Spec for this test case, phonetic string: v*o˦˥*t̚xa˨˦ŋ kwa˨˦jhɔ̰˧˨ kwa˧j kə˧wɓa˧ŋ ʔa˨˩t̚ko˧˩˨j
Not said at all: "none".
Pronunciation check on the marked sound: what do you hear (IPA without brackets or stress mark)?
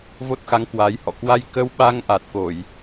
o˦˥